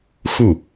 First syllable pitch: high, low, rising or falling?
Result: falling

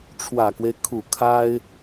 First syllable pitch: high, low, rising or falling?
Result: low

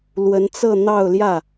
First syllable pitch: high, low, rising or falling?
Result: rising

